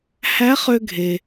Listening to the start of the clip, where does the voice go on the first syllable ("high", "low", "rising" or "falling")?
rising